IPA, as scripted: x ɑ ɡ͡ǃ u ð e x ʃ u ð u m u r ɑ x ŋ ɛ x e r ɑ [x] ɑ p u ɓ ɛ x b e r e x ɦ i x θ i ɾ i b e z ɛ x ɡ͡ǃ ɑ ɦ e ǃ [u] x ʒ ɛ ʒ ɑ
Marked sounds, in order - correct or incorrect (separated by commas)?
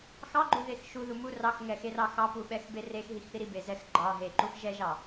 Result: correct, correct